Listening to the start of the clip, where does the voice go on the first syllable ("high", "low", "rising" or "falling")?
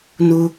high